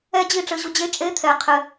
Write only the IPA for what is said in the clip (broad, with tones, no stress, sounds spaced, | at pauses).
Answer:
ɛ˦ d͡ʑ i˦˨ ʈ͡ʂ ɘ˧ ʑ u˧ d͡ʑ e˦ t͡ʃʼ e˦ t̪ʰ ɛ˨ qʰ ɘ˧